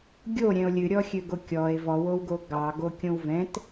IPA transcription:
ɡʲoɾʲɛ̃o̯ lʲɨɾʲɔxʲøɡo kʲɔe̯ vɔwowɡo ɡɑɡokʲõw vɛ̃t

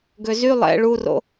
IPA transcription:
ɡøzy lˠɛ̰ ɭuro̰

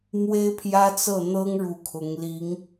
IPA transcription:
mwe˥ɪ̯pʰjä˥t͡sɤ˥˩ n̪ɤ˥ŋɻu˧˥ kʰʊ˧˥ŋli˧˥ŋ

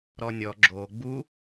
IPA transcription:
ɾɔnʲɔ ɡ͡ǁo ɡ͡bu

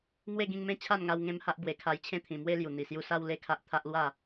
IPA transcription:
ŋwe˥˧ɡĩ˧ŋmẽ˦ t͡ɕʰa˥˧nŋa˧w ŋẽ˦mha˦ʔ bwe˨˩kʰa˧jt͡ɕʰẽ˥˧t̪ʰĩ˨˩ mwe˦lju˨˩ n̪i˨˩sju˧sa˦w le˥˧kʰa˦ʔ t̪ʰa˦ʔlwa˥˧

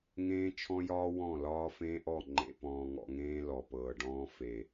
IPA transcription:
ŋẽː˦t͡ʃʰɔ̃˦jɒː˦ wɔ̃˦˨lɒː˦ fẽː˦ʔɔ˦˨ ŋ͡ǃḛ˨ pɔ̃ː˨ŋɔ̰˨ŋẽː˦ lɔ˨pɤː˨ɖɔ̃ː˦ fe˨

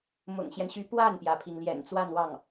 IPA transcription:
mʊ̰˨˩ŋɕjɛ˦nɕy˧˥ pwa˥˩npjä˩pʰi˩ŋ ljɛ̰˨˩nt͡swa˥˧nwɑ˥˩ŋ

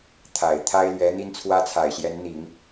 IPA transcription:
t̪ʰa˨˩ɪ̯ t̪ʰa˥ɪ̯lɥɛ˧˥ n̪i˥nt͡sʰwä˥t͡sʰa˨˩ɪ̯ɕjɛ˧˥n n̪i˨˩˦ŋ

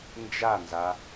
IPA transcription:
nd͡ʒanza

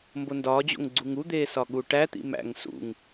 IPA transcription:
mbondɒːd͡ʑo̰ŋ ɡ͡ǀuŋud̪eː sɒɠuʈæt̪ḭ mæ̰ŋ sṵŋ

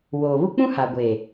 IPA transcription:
woː˨βu˦ k͡pũ˦ ha˨ɡʷeː˨

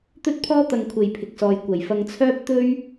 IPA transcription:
t̪ɵ˥t̚pʰɔː˥ t̪ɐ˧ŋkʷʰe˨jpʰɪ˨k̚sɔː˨j kʷɐ˨˩jfɐ˧ŋt͡sʰœː˥p̚ t̪ɵ˥ɥ

